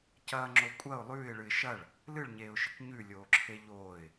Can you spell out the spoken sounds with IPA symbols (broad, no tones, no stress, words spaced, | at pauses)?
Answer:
cɐːŋ͡ǁo kʷʼɐʊ̯ lˠʉːɪ̯ɭɨɪ̯ ʃɐɭ | lɨɭɲeːʊ̯ʃɨk ɲʉlʲoːǁʰe ʎoːɪ̯